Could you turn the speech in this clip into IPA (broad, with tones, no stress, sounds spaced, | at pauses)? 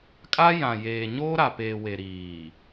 kʼ a˦ j ã˨ j eː˨ ɲ oː˦ ɾ a˨ p eː˨ w e˨ ɾ iː˨